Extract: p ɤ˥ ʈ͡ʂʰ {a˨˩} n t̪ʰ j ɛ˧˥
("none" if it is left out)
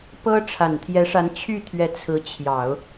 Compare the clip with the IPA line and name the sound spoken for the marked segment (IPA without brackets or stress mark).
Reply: a˨˩